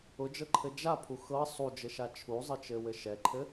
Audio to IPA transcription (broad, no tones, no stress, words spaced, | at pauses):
ʊd͡ʒɤǃʰɘ d͡ʒapʰu xɤ sˤud͡ʒɘʃa t͡ʃʰuzˤɘt͡ʃɘwɘ ʃɛǃʰɘ